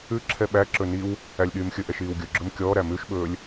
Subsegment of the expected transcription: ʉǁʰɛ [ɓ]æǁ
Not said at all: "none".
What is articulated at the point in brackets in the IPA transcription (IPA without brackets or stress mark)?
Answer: ɓ